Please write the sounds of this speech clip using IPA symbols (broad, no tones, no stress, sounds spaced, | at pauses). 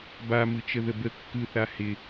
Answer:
b a m ɯ t͡ʃ ə ð ə b ə kː ɯ θ a h ɪ